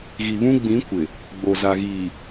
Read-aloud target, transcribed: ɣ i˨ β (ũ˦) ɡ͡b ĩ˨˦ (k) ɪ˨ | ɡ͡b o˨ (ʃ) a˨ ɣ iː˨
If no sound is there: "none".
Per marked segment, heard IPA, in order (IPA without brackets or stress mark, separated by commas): ũ˦, kʷ, z